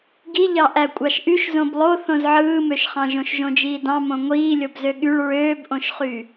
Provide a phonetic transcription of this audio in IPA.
ɡ i ʎ ɑ ʔ æ kʷʼ ɑ ʃ ʔ y ʃ z õ b lˠ o θ õ z ʕ ɯː m ø ʃ χ ɑ̃ ʒ õ ʃ ʒ õ d͡ʒ iː d ɑ̃ m õ ŋʷ iː lʲ o b z ø ɠ y ɭ ɹ øː b ʔ õ ʃ χ y

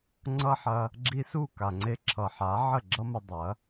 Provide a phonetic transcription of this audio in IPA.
ŋ͡ǀ ʌ˦ ħ ɐ˧ | ɡ͡ǁ i˧ s u˦˨ k a˨ ŋ͡ǀ e˧ ǁʰ ʌ˨ ħ a˨˦ ʕ ə˦˨ ɡ͡ǁ ʌ˦ m ə˧ dˤ ɐ˨˦

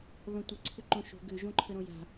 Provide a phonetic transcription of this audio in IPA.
ð ɔ̃ tʷ ɪ ǀʰ ʏ ǃ õ ʃ o̤ ɡ ʏ ʒ õ ǃʰ ə ɾ õ j a̤

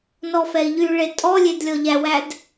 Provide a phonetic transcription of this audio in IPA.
n ɔ f ɛ i̯ ʎ y ɭ e tʼ ɔ lʲ e d lʲ ɔ ʎ æ w æ d

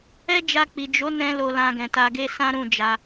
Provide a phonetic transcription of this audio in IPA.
ɛ˦ d͡ʒ a˧ k͡p i˨ d͡ʒ o˨˦ n ɛ̃˧ l o˧ l ã˧ ɡ ɛ̃˨ t a˧ ɡ e˧ s ã˦ ɾ ũ˦˨ d͡ʒ a˧

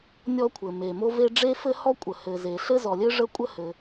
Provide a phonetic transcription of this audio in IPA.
nʲ ɔ˥ kʷʰ ɘ˩ m e˩ m o˥ v e˥ ɖ͡ʐ e˥ f ɘ˥ h ɔ˥ kʷʼ ə˩ h ɘ˩ z e˩ ɬ ɘ˥ z ɔ˩ lʲ ɘ˥ ʐ ə˥ kʷʼ ə˥ h ɘ˩

